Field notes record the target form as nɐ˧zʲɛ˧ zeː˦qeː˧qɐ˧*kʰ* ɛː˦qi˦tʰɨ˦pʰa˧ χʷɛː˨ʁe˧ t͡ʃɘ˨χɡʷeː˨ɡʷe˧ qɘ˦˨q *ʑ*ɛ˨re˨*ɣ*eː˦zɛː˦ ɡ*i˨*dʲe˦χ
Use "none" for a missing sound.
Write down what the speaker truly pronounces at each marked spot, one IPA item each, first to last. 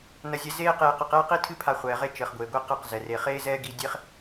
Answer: q, z, χ, i˧

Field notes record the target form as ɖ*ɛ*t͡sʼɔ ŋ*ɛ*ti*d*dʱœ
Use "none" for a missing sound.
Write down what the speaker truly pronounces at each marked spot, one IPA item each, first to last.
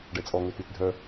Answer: ɛ, ø, t

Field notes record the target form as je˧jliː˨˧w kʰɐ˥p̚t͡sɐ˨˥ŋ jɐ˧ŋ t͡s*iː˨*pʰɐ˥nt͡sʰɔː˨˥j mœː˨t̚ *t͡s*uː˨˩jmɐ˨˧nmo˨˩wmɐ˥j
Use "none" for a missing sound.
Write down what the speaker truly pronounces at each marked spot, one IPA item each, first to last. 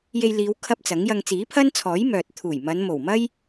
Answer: iː˨˥, t̪ʰ

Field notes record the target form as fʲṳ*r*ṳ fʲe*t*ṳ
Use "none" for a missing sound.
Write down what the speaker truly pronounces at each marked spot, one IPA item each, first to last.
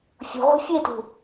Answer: ʁ, t

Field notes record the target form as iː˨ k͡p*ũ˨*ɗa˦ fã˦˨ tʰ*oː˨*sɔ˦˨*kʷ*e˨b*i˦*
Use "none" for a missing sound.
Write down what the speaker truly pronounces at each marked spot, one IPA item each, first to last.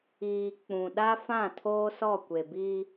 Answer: ũ˨, oː˦, kʷ, iː˦

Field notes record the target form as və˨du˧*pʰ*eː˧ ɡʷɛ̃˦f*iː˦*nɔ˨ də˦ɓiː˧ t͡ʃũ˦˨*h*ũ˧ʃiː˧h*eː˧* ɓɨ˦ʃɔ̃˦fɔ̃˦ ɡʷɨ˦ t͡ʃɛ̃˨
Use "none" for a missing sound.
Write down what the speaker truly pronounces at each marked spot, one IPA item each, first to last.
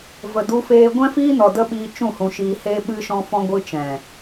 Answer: f, iː˦, h, eː˦

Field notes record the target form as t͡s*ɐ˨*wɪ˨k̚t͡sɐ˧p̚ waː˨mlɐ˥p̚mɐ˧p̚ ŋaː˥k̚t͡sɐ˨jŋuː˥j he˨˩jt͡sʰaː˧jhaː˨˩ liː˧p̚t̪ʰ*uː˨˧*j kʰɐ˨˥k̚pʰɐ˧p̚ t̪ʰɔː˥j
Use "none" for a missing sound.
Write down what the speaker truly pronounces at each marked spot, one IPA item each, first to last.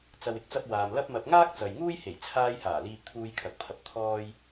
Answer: ɐ˨, uː˧

